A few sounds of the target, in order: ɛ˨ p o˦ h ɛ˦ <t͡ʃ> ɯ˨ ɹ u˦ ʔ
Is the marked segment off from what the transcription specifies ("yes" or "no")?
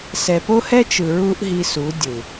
no